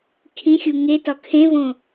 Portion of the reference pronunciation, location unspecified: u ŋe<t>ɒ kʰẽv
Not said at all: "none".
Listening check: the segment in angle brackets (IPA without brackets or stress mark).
t